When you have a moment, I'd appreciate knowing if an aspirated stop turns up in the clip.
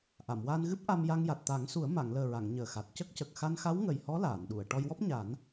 no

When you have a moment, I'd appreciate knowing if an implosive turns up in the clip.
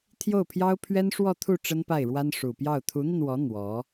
no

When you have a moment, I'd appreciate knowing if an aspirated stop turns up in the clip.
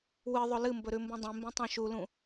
no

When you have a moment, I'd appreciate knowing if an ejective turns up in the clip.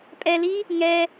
yes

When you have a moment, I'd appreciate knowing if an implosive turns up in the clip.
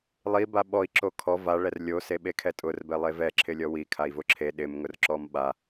yes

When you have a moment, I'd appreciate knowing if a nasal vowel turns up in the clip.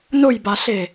no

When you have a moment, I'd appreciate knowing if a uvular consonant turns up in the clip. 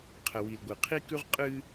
yes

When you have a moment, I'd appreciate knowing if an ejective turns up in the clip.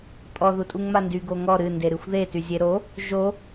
yes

